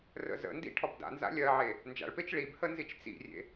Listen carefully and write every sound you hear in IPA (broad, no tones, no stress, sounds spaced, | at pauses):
r ə̰ z ə̰ n d ḭ ʈʰ ɔ b d a̰ n z a̰ lʲ ɜ ʕ e | n d͡ʒ a̰ ɭ p e t͡ʃ ɭ i b h ə n z i t͡ʃ t͡s ḭ rʲ ḛ